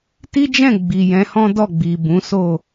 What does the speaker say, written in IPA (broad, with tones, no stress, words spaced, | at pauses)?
ti˦d͡ʒɛ̃˦˨ɡ͡bi˨ jɛ̃˨˦hɔ̃˦dɔ˦˨ɡ͡bi˨ bũ˨˦so˦˨